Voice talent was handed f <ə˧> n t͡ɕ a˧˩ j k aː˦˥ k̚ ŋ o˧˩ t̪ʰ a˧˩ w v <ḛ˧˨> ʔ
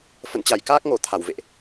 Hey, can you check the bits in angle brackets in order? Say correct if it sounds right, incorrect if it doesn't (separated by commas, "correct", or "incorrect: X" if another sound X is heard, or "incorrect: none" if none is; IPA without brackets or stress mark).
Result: incorrect: ə̰˧˨, correct